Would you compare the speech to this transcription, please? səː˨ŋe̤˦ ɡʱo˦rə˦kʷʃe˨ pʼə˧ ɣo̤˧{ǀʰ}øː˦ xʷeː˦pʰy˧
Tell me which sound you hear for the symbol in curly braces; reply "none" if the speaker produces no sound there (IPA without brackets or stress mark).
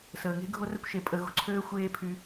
ǀʰ